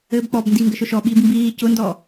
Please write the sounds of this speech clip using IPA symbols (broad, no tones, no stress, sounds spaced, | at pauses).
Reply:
ɘː b k͡p ɔ b n d i ŋ ɡ ə ʃ ʊ ʃ ɔ ɓ iː b m b iː c ʊ n d ɔː